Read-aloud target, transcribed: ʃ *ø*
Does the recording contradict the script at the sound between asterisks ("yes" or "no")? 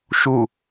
yes